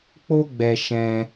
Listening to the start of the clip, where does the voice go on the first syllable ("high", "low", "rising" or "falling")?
high